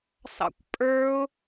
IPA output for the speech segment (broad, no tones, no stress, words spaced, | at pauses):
sɑ̰kʷpʼə˞ʊ̯